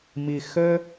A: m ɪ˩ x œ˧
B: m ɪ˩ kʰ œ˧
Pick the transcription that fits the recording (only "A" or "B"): A